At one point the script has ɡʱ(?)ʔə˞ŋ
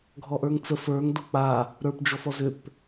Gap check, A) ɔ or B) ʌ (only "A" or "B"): A